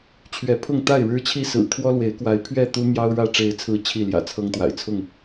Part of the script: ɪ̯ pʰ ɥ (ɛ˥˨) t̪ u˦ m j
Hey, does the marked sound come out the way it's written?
yes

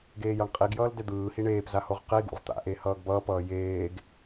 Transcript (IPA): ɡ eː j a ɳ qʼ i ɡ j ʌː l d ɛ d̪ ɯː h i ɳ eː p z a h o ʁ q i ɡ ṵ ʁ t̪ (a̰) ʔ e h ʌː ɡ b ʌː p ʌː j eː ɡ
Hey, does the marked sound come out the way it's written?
yes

